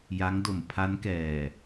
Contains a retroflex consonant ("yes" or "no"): no